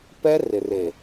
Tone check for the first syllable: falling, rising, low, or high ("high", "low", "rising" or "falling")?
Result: high